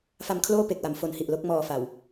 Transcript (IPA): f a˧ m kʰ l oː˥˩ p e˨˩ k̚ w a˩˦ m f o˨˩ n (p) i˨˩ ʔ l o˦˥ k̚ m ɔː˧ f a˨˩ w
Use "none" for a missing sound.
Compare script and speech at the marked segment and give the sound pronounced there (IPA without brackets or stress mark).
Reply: h